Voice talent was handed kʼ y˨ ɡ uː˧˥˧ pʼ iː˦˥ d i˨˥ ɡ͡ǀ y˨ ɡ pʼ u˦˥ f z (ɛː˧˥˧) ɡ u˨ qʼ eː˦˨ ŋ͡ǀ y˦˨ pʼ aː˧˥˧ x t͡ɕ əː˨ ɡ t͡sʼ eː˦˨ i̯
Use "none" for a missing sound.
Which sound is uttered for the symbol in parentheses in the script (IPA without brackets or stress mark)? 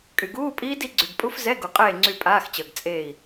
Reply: ɛ˧˥˧